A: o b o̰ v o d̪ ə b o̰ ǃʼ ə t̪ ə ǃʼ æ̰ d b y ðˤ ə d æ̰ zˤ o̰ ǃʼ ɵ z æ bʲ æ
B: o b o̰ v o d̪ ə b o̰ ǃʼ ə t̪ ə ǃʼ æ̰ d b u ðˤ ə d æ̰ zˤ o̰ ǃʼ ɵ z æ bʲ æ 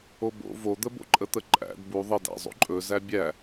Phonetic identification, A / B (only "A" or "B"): B